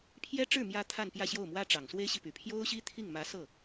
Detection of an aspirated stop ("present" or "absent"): present